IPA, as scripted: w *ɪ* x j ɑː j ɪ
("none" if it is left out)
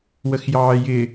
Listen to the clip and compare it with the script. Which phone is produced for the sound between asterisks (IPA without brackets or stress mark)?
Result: ə